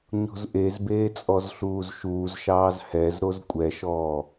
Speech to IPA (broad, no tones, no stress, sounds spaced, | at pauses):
ɲ o̤ z ʔ e z b eː t͡sʼ ɔ z ɬ uː z ʃ uː z ʃ ɑː z h ɛ z ɾ o z kʷʼ ɛ ʃ ɔː